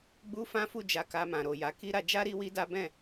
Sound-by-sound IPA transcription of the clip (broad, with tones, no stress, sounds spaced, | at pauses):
ɡ͡b u˦ f ã˦ f u˦˨ d͡ʒ a˨ k a˨ m ã˨ ɾ o˨ j a˨˦ k i˦ ɾ a˧ d͡ʒ a˦ ɾ i˦ w i˦ d a˦ b ɛ̃˦˨